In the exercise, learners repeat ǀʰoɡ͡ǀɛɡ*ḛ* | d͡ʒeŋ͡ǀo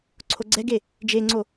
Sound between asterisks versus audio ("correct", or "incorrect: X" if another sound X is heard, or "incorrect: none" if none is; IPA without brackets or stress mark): incorrect: e